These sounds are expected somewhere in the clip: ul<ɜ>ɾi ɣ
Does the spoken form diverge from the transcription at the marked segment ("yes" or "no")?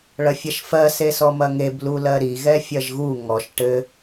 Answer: no